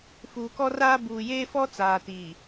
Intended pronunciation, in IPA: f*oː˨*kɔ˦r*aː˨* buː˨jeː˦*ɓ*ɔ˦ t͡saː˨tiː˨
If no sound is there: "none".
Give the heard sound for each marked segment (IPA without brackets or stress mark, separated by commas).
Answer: uː˨, aː˦, f